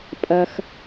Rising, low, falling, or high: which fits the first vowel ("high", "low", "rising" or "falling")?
low